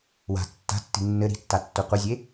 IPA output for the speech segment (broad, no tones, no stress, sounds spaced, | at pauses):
w a̤ tː a̤ tː i̤ nː ɘ ɾ i̤ tː a tː o qʷ ɘ zʲ e